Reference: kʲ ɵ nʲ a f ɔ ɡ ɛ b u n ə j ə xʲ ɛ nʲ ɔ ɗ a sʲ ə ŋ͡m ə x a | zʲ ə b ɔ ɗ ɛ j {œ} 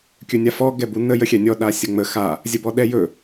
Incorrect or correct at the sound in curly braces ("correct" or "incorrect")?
incorrect